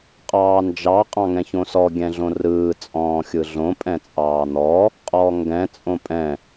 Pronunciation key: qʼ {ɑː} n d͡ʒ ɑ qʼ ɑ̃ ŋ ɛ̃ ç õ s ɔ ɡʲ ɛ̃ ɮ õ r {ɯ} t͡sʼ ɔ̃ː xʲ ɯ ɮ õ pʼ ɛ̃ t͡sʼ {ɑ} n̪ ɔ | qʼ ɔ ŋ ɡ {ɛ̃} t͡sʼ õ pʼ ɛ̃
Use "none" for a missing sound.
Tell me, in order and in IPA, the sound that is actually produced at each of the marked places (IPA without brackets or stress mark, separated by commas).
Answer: ɑː, ɯː, ɑː, ɛ̃